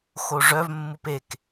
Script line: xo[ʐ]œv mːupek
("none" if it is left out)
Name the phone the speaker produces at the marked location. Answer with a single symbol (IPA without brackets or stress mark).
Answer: ʐ